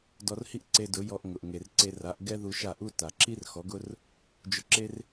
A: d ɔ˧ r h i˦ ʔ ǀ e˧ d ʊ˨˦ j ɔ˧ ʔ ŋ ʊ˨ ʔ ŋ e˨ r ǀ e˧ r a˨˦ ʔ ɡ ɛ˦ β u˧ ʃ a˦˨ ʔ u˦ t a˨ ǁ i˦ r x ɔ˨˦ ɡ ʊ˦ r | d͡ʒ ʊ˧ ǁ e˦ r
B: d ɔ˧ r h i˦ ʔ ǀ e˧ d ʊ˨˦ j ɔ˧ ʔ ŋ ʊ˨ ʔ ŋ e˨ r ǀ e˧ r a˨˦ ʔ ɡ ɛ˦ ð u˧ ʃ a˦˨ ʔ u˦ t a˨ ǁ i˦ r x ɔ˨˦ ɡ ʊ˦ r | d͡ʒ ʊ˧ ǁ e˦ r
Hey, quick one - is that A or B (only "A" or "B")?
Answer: B